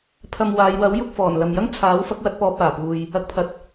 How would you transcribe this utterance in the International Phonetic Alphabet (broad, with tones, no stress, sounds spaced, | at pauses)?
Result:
pʰ ɐ˧ m w aː˨˧ j w ɐ˨˥ w j ʊ˧ k̚ f ɔː˨˩ n l ɐ˨ m j ɐ˥ ŋ t͡sʰ aː˨˥ w f ɐ˨˥ k̚ w ɐ˧ t̚ p ɔː˧ p̚ aː˨˩ p uː˨ j | ɐ˧ k̚ t̪ʰ ɐ˨ t̚